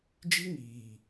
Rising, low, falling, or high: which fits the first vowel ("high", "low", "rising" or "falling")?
high